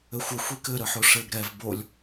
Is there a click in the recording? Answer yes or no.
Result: no